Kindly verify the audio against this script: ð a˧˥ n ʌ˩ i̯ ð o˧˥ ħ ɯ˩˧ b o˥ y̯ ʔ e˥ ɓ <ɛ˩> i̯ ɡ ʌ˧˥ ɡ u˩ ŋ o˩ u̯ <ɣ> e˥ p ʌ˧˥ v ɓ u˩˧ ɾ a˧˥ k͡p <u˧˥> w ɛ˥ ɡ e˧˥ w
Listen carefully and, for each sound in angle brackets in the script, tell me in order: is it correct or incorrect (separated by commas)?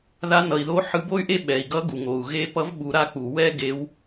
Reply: correct, correct, incorrect